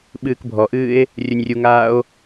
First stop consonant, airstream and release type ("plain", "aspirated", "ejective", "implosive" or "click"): implosive